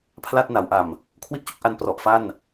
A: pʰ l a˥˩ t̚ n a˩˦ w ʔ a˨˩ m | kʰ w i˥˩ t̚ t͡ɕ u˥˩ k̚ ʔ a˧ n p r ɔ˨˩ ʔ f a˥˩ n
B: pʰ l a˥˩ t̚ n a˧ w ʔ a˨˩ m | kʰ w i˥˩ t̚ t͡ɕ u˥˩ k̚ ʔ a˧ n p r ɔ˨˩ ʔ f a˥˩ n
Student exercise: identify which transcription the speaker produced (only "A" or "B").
A